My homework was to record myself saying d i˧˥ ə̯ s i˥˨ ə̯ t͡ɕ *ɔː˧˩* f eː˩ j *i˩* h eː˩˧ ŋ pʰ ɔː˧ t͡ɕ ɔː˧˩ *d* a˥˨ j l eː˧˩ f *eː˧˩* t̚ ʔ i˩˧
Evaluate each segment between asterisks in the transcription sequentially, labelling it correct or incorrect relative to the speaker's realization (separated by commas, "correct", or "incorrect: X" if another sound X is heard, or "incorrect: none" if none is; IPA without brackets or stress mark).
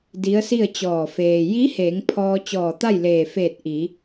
correct, incorrect: i˧˥, incorrect: t̪, correct